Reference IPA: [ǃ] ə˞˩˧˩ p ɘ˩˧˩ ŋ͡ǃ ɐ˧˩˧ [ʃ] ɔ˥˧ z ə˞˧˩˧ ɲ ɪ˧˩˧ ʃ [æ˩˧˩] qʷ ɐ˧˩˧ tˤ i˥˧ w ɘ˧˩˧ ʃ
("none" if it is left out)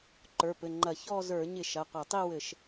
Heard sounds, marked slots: ǃ, ç, ɐ˩˧˩

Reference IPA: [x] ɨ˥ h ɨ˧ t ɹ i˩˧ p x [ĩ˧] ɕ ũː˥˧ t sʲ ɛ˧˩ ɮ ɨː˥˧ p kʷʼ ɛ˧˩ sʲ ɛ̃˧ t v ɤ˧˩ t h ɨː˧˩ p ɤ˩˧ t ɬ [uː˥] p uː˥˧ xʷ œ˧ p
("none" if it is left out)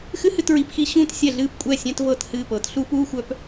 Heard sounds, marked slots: x, i˧, uː˥

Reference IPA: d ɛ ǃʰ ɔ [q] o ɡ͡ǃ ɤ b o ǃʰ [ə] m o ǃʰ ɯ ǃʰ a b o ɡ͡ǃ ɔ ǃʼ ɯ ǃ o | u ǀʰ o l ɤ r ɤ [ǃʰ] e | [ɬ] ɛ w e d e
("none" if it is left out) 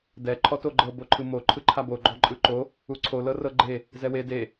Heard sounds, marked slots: t, ɯ, ɡ͡ǃ, z

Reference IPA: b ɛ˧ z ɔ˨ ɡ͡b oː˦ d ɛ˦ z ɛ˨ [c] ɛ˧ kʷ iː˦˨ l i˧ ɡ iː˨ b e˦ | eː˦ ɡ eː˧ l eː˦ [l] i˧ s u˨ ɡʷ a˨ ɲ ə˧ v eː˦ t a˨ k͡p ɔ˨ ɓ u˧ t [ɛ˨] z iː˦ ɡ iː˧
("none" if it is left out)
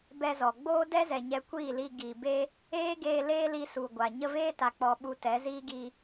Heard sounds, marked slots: ɲ, l, ɛ˨˦

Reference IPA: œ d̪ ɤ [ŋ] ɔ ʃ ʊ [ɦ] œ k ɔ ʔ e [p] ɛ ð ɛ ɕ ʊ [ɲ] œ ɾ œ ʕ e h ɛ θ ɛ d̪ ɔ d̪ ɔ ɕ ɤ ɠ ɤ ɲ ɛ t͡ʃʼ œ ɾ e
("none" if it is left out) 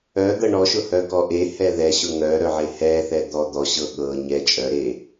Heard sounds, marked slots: ɳ, h, h, ŋ

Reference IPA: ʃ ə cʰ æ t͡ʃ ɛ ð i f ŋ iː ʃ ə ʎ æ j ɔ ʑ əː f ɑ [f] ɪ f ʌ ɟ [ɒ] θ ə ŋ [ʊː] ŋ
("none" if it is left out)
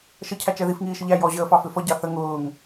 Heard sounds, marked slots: f, ɑ, ʊː

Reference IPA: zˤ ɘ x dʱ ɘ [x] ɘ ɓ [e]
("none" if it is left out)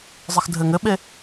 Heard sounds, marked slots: ŋ, e

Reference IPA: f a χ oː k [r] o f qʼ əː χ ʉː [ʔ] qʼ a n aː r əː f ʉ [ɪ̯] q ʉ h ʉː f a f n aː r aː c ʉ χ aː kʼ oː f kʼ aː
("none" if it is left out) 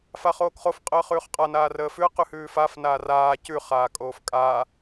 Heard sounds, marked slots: χ, χ, ə̯

